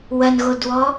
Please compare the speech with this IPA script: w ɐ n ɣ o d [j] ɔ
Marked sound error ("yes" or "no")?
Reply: yes